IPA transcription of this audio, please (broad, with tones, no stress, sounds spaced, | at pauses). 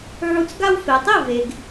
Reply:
ʕ u˧ t͡s ɡ a˥ w f e˩ tˤ i˥˩ v e˩ ɡ